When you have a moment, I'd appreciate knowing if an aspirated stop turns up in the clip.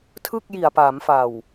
yes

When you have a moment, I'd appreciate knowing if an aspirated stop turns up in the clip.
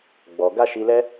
no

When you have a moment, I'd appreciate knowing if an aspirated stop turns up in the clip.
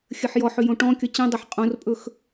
no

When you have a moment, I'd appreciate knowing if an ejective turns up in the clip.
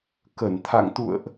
no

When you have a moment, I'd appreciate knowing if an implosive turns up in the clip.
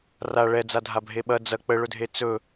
yes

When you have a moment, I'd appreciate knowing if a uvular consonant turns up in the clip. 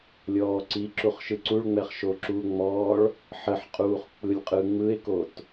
yes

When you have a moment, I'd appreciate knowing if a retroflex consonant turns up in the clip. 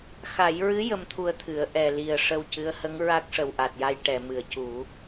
yes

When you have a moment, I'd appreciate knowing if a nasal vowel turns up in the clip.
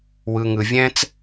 yes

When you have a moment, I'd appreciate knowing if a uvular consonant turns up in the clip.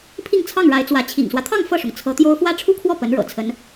no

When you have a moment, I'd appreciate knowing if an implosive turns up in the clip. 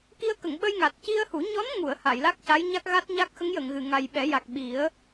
yes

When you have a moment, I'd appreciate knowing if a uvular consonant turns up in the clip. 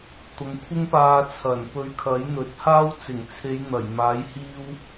no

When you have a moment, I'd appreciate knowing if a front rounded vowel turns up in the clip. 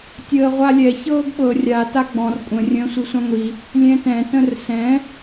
no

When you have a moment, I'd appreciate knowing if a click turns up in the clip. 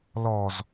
no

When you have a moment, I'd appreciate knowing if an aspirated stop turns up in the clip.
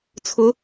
yes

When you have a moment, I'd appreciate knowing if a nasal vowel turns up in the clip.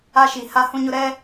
yes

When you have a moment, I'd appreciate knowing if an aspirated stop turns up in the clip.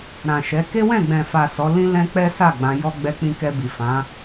no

